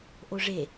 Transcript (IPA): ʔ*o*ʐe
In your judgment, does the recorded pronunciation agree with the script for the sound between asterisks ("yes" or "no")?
yes